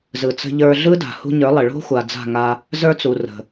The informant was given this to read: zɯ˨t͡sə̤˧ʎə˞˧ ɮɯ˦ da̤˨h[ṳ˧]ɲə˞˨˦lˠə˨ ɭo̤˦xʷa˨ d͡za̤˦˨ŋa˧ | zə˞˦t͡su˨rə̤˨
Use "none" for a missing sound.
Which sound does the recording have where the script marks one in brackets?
ṳ˧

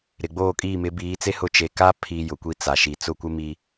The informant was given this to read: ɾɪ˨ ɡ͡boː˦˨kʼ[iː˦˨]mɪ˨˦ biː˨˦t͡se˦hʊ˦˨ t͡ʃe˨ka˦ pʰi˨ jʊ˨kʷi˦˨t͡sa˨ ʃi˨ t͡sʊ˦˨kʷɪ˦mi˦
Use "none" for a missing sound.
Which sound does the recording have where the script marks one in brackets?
iː˦˨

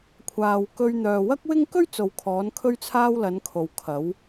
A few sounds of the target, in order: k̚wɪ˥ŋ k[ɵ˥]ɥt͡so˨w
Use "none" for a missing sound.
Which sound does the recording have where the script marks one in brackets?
ɵ˥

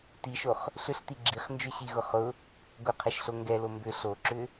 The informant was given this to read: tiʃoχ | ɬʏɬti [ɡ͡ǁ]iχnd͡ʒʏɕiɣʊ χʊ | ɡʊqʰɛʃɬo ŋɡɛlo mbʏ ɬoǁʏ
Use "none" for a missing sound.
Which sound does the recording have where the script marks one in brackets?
ɡ͡ǁ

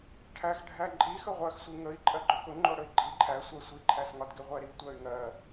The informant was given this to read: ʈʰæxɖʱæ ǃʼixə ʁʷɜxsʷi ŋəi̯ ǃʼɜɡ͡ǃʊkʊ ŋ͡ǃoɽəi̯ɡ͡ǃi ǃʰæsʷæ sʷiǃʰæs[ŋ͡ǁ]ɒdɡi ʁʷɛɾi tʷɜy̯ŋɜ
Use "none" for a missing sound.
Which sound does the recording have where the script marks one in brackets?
ŋ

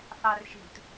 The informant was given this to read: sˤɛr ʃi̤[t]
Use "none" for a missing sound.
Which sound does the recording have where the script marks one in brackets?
t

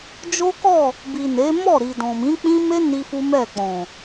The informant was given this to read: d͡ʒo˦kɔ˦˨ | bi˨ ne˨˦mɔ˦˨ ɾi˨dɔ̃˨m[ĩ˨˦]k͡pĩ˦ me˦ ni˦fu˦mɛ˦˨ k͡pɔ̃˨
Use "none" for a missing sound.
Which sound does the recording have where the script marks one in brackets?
ĩ˨˦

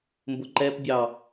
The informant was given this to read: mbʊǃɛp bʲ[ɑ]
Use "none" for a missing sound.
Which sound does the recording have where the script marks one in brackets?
ɑ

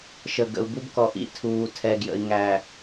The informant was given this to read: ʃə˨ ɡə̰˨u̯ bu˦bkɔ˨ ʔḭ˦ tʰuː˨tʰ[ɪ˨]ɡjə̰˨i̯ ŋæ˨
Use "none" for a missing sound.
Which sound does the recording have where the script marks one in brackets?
ɛ˨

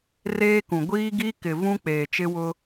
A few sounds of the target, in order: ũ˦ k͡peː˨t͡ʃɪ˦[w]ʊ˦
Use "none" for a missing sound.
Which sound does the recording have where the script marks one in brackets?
w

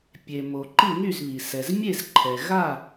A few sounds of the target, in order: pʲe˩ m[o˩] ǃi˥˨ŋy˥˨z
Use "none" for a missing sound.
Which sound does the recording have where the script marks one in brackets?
o˩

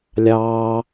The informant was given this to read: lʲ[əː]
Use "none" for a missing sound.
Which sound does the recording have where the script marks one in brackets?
ɑː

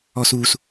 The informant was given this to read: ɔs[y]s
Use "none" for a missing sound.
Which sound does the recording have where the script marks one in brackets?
u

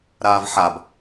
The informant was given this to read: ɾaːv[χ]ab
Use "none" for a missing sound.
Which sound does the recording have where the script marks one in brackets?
ħ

